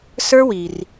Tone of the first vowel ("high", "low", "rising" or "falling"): high